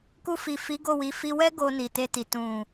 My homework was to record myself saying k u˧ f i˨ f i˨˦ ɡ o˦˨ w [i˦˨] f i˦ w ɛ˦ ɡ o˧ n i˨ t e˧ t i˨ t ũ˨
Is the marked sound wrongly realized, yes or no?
yes